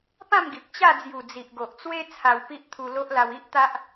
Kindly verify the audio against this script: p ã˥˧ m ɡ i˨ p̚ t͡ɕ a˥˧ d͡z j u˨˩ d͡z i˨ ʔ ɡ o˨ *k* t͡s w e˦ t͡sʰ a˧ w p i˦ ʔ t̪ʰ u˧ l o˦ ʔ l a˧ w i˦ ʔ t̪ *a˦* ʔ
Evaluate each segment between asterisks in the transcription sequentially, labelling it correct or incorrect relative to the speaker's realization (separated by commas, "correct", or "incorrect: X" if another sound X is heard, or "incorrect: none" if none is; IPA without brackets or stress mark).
incorrect: ʔ, correct